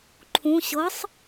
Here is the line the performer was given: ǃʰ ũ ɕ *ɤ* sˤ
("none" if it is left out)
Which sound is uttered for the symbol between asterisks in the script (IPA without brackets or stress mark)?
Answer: ɤ